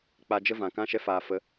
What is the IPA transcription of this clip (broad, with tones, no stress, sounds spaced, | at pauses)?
k͡p a˧ d͡ʒ ə˦ v ã˨ k ã˧ ʃ ɛ˧ f aː˨ f ə˨˦